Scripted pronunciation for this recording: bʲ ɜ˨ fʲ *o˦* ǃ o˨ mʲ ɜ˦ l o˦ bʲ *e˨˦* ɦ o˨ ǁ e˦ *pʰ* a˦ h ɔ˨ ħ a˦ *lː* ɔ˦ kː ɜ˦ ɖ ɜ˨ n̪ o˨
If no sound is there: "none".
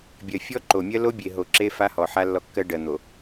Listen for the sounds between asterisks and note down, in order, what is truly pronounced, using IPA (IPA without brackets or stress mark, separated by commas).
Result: ɔ˦, e˨, f, lː